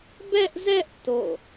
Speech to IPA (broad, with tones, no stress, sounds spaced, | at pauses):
b ɛ˦ ʔ z ɛ˦ ʔ t o̰˦˨